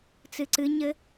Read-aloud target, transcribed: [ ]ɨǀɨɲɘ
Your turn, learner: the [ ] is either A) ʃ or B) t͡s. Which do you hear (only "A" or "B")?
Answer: B